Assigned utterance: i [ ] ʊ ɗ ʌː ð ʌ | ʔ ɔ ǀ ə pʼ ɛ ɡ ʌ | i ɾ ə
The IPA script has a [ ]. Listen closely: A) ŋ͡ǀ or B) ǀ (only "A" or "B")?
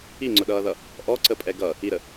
A